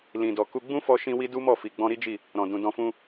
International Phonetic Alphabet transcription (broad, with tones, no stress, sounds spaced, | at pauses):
l ĩ˨ d ɔ˨ k u˧ ɡ͡b ũ˦ f ɔ˧ ʃ ĩ˧ w i˧ d u˦ m ɔ˦˨ f i˨ ɡ͡b ɔ̃˧ ɾ i˦ d͡ʒ i˦˨ | ɾ ɔ̃˨ d ũ˨ d ɔ̃˧ f ũ˧